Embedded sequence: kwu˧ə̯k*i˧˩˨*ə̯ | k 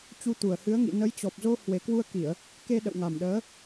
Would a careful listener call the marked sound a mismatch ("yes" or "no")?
no